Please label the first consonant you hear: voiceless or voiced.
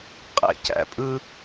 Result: voiceless